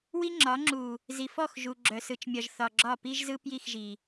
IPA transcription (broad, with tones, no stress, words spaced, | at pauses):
wi˦ŋ͡ǁɒ˨˦ ŋ͡ǁu˨ | zi˨fɔ˦˨x ʒu˨ ɡ͡ǁœ˨sɯ˨t͡ʃmʲɒ˨ʒ θɒ˨ɡ͡ǁɒ˦˨ pi˦ʒzɯ˦ pji˦˨xʒi˨